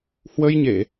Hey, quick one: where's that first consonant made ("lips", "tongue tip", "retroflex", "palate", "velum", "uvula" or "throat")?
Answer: throat